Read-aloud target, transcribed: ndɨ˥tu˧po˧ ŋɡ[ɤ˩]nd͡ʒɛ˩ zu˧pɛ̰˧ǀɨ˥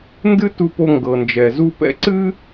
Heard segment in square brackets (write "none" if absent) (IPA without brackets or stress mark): ɤ˩